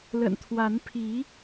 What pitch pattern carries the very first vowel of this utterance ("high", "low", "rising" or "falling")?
low